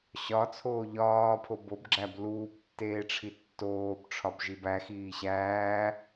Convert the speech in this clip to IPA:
ɕ ɒ t͡sʰ oː ʎ ɒː pʰ o b o b ɡ͡ǁ æ b l uː b tː eː ʈ͡ʂʰ i tː oː b ʈ͡ʂʰ ɒ b ʒ i b æ x iː ɕ æː

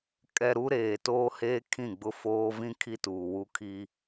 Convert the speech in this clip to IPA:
kʼ ɛ˨ ɾ u˦ ɾ eː˨ t oː˦ h eː˦ kʰ ĩ˦˨ ɡ͡b ʊ˦ f oː˦ v ĩ˦ kʰ i˦ t uː˨ w u˦ kʰ i˦

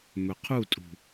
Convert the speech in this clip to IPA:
m ɵ qʰ u tʼ ṳ

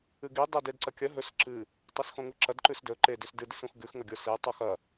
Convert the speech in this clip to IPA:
ɨ ɡ i dˤ e d e d ǀ ɐ kʲ ɐ ɦ ɵ s ǁ ɨ | tˤ e s x õ ŋ u ǁ ɐ d ǃ ʉ s d ɵ ǃ e d ʉ s d ɨ d i s ũ x ɡ ʉ x ŋ ɐ ɡʲ o s e tˤ u x ɐ

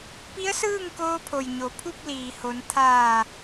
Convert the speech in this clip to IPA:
p i˧˥ ə̯ s ɯː˥˨ ŋ k oː˧ pʰ o˩ j ɲ o˩˧ pʰ u˥˨ p̚ l iː˩ h o˩˧ n t̪ʰ aː˧˩

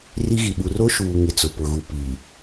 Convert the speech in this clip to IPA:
r i˦ ɣ i˨ ɓ u˨ r o˦ ʃ uː˨ ŋ ɪ˨ t͡s ʊ˨ p ʊ˨ ɣ u˨ p i˨

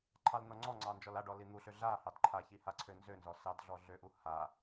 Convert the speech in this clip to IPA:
ǃʰ ɑ l n ɔ ŋ͡ǀ ɔ ŋ͡ǀ ɑ n d͡ʒ ɔ l a ɖ ɔ l i n̪ u ɬ ø ɮ a h ɑ d ǃʰ a ç i h a ǀʰ ø n z ø n z ɔ s ɑ d ɮ ɔ ɮ ø ʔ u h a

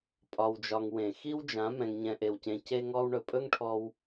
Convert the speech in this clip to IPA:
pʼ ɒ˧ w d͡ʒ ɒ˧ ŋ w ẽ˨ x i˦ w d͡ʒ ã˨˦ m ɛ̃˧ ŋ ɲ ɛ̃˧ ʔ e˧ w c ẽ˧ c e˦ ŋ ɔ˦ w ɳ ɵ˨ pʼ ɵ˦ ŋ ʈʰ ɔ˧ w

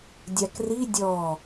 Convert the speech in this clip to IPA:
dʲ a k r i dʲ ɔ

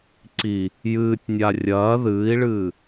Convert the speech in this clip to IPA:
ǀ i | j ɨː tʲ nʲ a rʲ ɐː ð ɨː i̯ ɭ ɨː

